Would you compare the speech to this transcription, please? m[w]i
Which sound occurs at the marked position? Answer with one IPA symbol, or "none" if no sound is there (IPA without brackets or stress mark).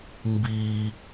b